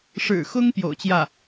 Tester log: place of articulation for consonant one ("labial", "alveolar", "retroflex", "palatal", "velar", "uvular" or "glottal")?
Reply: retroflex